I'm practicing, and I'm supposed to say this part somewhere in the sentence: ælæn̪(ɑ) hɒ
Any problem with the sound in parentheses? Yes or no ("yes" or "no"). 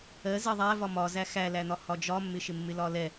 yes